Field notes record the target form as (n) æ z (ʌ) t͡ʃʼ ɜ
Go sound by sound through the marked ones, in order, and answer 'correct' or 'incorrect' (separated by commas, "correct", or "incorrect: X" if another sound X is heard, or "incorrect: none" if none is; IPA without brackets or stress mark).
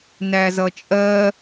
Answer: correct, correct